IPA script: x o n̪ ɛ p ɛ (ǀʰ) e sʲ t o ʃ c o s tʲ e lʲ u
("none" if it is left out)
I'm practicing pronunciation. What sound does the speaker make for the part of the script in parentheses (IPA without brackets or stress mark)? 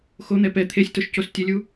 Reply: t̪ʰ